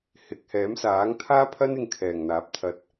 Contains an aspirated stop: yes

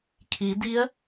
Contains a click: no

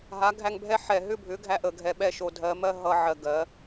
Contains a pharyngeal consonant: yes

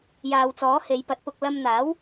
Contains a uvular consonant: no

